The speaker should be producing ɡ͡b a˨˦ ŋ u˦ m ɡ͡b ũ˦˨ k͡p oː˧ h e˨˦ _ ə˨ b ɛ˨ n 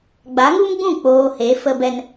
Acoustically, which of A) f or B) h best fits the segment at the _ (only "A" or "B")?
A